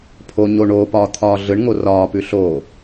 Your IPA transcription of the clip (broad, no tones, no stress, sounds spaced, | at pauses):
pʰ o ɲ o ɳ oː p ɒː t̪ʰ ɒː ɮ ɯ ɳ ŋ o r ɒː p ʉ ɬ oː